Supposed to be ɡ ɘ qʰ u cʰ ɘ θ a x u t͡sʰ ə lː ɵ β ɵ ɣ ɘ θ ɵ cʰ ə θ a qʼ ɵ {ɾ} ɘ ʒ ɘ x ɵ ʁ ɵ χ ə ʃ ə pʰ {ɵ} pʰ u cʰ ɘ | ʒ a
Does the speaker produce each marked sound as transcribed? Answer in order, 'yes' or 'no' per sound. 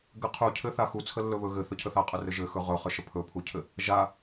no, yes

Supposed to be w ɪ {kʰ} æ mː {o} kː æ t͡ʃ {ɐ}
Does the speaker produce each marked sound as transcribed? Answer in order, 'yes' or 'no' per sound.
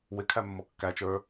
yes, no, no

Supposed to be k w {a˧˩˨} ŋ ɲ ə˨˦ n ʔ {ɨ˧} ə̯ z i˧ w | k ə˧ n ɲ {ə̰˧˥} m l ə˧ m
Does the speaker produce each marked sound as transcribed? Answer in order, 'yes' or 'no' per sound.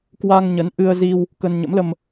no, yes, yes

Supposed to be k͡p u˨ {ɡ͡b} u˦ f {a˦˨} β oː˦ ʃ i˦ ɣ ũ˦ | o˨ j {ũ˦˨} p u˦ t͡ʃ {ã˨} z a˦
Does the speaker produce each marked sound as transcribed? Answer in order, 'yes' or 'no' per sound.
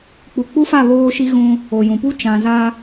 no, yes, no, yes

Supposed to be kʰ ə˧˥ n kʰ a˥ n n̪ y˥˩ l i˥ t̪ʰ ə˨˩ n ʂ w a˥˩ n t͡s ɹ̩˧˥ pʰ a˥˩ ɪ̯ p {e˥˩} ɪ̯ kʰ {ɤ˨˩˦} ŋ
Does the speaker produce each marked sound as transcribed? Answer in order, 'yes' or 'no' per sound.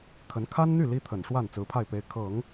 no, yes

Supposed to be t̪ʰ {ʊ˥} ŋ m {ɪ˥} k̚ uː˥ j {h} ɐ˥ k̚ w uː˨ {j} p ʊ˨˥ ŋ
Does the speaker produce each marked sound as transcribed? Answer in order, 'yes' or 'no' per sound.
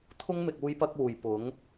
yes, no, no, yes

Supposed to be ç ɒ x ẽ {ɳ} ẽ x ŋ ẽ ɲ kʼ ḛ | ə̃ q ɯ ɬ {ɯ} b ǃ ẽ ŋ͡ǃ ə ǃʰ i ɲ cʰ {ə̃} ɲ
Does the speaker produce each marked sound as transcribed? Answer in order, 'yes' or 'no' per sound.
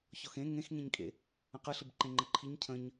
no, yes, yes

